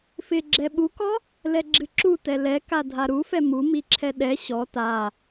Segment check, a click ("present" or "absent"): present